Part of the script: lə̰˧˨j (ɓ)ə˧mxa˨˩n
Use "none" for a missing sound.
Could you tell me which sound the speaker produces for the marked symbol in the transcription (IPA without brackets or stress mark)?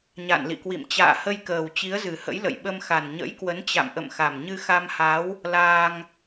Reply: ɓ